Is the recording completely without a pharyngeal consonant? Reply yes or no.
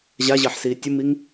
no